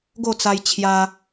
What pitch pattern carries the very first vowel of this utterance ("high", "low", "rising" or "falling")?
falling